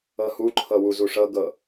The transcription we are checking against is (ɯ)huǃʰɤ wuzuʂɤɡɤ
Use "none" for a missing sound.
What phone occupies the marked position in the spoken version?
ɤ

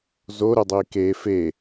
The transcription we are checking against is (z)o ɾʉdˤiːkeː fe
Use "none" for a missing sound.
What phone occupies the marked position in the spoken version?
z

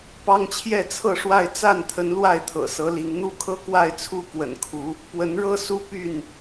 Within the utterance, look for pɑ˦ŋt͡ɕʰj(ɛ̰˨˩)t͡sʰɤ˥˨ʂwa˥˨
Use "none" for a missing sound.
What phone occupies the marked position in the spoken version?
ɛ˥˨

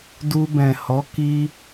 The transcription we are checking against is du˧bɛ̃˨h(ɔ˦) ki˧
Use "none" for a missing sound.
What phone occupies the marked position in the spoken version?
ɔ˨˦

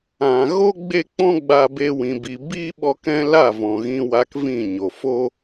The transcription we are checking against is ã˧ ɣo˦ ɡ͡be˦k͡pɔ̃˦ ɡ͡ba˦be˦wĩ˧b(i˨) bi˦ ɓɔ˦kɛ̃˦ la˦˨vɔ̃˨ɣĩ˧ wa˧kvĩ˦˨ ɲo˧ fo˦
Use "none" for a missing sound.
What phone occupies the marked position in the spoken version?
i˧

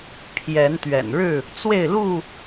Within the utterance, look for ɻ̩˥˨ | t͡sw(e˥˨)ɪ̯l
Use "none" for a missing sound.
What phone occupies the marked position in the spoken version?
e˥˨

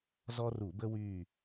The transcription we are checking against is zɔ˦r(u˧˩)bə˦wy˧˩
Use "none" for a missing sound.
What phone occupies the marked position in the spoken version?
u˧˩˧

